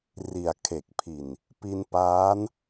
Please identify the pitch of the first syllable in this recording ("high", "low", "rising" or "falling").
low